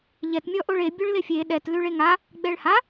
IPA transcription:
ʎɛtmʲɔ ʔoɭe bʲoɭlefʲe ɗɛtlʉɭ eŋa | ɡ͡bɛɭha

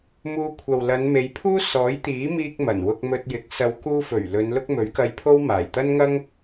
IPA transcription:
muː˧ kʷʰɐ˨wlɐ˨˧nme˨˧jpʰuː˥ sɔː˨˥jt̪iː˨˥miː˧k̚ mɐ˨˩nwʊ˧k̚mɵ˧t̚jɪ˨˥k̚ sɐ˨˧wkuː˧fɵ˨˩ɥ lɵ˨˧nlʊ˥k̚ mɵ˨˥ɥkɐ˧jpʰo˥w maː˨˩jt̪ɐ˥nŋɐ˥ŋ

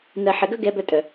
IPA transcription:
nɜ˨ħɘ˨ɡœ˦ ɡɛ˧ bœ˧tʼœ˨

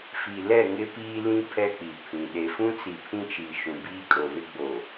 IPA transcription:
fi˨lɛ˦˨ ŋɪ˦piː˦lĩ˦ pʰɛ˦k͡pi˨pʰĩ˨ ɗe˨fũ˦t͡si˨ pʰĩ˦t͡ʃi˨ ʃũ˨biː˦kʼo˨ βɪ˦ɡ͡boː˨

